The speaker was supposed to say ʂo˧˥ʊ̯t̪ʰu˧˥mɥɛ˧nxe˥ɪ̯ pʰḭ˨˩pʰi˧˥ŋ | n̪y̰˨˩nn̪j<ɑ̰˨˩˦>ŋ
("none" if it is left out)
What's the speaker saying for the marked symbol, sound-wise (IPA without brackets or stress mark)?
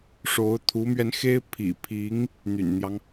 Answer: ɑ˦